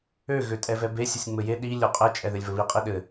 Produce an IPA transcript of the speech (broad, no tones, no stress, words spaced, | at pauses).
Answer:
ø ɣøtʼɛvɛbe sʲəsʲŋ͡mɘje ɗi lʲoqʼe t͡ʃʼɛðɘlʲvəβi qʼiɗɘ